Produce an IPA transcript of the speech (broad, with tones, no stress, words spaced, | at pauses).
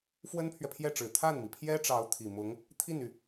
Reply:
fwə˥npʰɥɛ˨pʰjɛ˥˩ʈ͡ʂɻ̩˨˩ t̪ʰa˥˩nmi˩pʰjɛ˥ʈ͡ʂɑ˧˥ʊ̯ t̪ʰi˨˩mʊ˧˥ŋ | t̪ʰi˥˩ny˩